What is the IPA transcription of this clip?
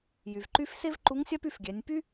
jy˩vǃy˧˥f se˥vǃu˧˥ŋsʲa˥p y˧fɡʲɛ˩˧nʲ py˥

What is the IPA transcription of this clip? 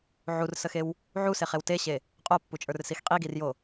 ʕursəxew | ʕuseχew teɕe | qʼopːut͡ʃʼə˞rsix qʼiɡirjo

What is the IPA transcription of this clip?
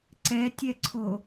ǀɛ tʲɛǀʰo

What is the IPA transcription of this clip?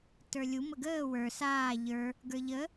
tə˞lʲu məɡəː wə˞ saː ʎə˞ | ɡə˞ʎə

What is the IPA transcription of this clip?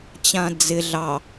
t͡ɕãd͡zɪ ɮɑ

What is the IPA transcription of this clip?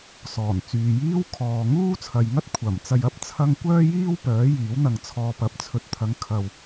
sɔː˨˩nt͡syː˨jiː˥w kʰɔː˨ŋuː˥t͡sʰɐ˨jŋɐ˥t̚ kʷʰɐ˨˩mt͡sɐ˧jɐ˧p̚ t͡sʰɐ˥ŋ kʷœː˥jiː˥w pœː˨˥ jiː˨˥wn̪ɐ˧ŋt͡sʰɔː˧ pɐ˨˥p̚t͡sʰɵ˨t̚t̪ʰɐ˨˧ŋ kʰɐ˨w

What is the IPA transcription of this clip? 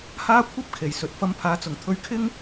haː˥kʷʰɐ˥p̚ kʰe˨˩jsɵ˨t̚ fɐ˧mpʰaː˨˧t͡sʊ˨˩ŋt̪ʰɵ˧ɥ kʰɪ˥ŋ

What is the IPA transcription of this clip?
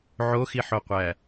ʕoxiħoqʷæ

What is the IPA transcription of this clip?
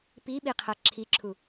piɓiqʰa ǁʰiǁʰu

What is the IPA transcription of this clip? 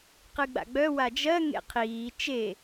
qɨɡ͡ba̰ɡ͡bœ wad͡ʒɜ ŋḛqʰiː t͡ʃe

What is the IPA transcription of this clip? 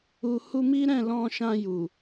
u˨ hu˧mi˦ ɾɛ̃˦˨lɔ̃˧ʃã˧ju˨

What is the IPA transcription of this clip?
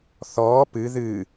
θɔː pɨ ðɨ

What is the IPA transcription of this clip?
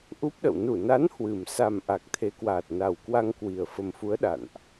ʔu˦˥p̚ɗə̰˧˨w nu˧˩na˨˦n hwɨ˨˩m sa˨˩m ʔa˨˩k̚t̪ʰe˨˦kwaː˨˩t̚ na˨˩wkwa˧ŋkwi˨˩ə̯ fə˨˩mfu˨˦ə̯ ɗa̰˧˨nʔ

